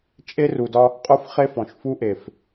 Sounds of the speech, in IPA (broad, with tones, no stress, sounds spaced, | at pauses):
t͡ʃʼ e˦ r u˨ d ɒ˦ | qʼ o˦ f χ e˦ f ɔ̃˨ ʃ f u˦ ʔ e˨ f